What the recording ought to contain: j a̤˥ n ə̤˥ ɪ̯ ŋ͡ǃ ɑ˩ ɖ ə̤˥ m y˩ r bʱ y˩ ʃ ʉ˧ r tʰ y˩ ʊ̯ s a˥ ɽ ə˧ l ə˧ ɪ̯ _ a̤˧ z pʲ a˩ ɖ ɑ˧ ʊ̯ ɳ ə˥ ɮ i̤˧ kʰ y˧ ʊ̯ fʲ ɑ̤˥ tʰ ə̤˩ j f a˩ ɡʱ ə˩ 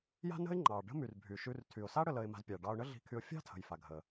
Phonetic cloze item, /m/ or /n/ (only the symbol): m